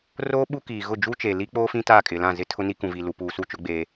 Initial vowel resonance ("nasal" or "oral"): oral